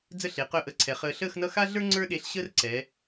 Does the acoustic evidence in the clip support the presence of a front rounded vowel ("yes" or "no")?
yes